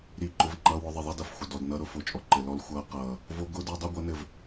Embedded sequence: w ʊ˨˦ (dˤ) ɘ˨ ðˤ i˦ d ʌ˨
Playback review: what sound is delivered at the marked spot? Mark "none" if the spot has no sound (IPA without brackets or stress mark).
ðˤ